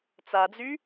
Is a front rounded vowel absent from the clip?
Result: no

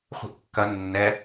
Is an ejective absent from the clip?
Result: yes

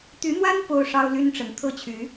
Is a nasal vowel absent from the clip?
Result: yes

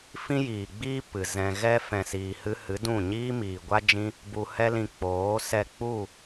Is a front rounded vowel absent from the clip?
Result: yes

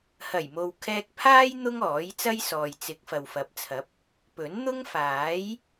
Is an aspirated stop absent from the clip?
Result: no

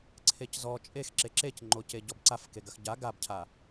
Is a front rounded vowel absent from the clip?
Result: yes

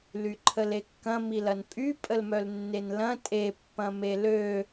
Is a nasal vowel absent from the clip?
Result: no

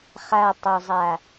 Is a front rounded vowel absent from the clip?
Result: yes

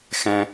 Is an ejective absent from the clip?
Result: yes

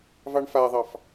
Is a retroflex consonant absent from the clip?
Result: no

